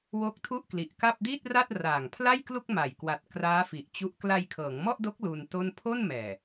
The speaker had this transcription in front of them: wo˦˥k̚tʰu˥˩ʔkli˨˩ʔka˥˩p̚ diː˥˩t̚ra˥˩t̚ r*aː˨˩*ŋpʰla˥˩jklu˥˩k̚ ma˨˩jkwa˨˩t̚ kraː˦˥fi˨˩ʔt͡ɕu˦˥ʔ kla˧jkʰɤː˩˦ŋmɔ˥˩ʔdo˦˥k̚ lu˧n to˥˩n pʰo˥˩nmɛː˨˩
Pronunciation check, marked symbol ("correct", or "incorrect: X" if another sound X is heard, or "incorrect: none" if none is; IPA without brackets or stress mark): correct